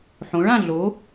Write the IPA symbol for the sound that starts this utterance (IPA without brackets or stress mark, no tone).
ħ